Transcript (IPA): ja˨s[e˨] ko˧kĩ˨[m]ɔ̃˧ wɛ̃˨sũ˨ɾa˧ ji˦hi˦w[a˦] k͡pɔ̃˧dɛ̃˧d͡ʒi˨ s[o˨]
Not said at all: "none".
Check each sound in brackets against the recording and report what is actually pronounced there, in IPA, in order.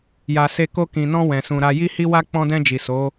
e˧, n, a˦, o˨˦

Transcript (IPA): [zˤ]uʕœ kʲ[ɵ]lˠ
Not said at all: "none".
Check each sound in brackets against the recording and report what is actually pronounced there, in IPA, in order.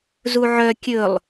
z, ɵ

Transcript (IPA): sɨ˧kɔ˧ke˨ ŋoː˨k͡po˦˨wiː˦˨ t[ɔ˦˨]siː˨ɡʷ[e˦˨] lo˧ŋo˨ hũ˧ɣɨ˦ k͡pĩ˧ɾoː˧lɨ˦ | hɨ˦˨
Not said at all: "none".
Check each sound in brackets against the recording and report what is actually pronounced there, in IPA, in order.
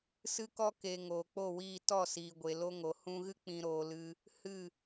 ɔ˦˨, e˨

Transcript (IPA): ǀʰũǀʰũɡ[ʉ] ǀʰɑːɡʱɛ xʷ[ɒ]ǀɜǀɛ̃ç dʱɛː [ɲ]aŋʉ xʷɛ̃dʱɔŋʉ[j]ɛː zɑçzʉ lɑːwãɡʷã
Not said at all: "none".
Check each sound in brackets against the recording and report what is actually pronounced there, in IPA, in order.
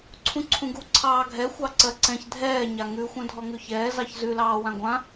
u, ɑ, ɲ, ç

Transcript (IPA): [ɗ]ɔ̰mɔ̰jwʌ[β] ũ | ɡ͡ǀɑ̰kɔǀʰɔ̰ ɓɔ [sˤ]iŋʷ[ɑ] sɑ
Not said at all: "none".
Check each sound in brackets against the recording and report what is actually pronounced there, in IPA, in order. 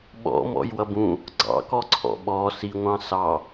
ɓ, b, s, ɑ̃

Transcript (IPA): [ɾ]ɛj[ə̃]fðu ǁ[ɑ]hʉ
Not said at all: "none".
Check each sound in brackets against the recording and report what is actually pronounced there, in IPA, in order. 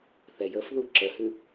θ, ə, ə

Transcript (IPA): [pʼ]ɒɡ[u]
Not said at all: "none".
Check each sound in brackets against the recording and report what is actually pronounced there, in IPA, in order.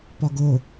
p, o

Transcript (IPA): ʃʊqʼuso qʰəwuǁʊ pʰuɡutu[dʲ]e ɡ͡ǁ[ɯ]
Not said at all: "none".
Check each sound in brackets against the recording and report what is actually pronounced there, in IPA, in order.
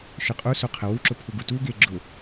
ɡ, ʊ

